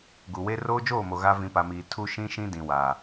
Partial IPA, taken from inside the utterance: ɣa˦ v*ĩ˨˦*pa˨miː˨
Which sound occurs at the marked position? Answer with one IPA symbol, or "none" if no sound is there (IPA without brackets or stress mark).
ĩ˨˦